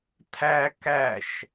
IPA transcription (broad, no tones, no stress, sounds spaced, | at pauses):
tʰ æ k æ ʃ